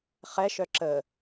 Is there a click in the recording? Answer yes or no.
yes